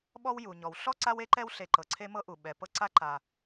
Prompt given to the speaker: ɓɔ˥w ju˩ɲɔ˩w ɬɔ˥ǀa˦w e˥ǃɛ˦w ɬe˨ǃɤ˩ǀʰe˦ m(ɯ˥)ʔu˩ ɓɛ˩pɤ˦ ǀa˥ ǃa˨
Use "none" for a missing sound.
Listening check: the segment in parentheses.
ɤ˥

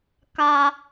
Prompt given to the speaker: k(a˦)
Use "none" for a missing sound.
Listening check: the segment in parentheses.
a˦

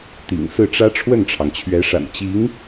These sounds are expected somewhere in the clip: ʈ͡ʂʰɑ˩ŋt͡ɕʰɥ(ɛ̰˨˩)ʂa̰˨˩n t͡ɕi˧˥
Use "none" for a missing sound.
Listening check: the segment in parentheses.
ɛ˧˥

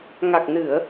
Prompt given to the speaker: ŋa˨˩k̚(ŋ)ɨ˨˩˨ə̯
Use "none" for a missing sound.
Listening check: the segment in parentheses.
n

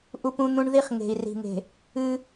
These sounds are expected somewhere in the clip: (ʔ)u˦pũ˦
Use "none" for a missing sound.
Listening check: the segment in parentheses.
ʔ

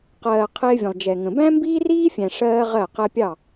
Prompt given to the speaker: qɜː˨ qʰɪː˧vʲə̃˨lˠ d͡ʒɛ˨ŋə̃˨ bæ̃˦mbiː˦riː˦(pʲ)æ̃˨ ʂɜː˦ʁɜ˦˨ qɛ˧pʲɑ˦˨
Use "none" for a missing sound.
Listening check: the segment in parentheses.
fʲ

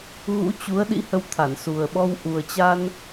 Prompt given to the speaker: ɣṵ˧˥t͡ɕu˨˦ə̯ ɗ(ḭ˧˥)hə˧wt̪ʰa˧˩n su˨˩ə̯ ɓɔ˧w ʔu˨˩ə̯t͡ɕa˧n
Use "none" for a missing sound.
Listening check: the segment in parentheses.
ḭ˧˥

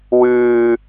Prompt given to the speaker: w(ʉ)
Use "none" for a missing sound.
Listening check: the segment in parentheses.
ʉː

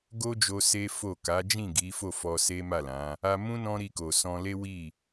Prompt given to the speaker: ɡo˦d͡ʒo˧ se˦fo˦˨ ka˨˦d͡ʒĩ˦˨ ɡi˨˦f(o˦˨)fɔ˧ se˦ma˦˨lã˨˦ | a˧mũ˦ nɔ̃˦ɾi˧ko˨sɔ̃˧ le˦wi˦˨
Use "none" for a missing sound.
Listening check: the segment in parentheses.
o˦˨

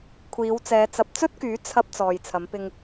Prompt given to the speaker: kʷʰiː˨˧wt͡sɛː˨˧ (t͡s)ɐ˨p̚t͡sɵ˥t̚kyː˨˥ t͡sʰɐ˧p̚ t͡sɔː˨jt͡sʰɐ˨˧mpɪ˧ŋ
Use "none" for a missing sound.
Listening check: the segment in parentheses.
t͡s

